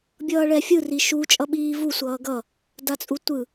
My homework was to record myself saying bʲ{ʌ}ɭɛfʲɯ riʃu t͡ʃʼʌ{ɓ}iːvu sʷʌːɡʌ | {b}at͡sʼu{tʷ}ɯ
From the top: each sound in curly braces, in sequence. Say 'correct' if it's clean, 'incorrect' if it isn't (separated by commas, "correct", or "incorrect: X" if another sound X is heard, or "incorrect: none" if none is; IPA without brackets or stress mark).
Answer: incorrect: ʌː, correct, incorrect: d, correct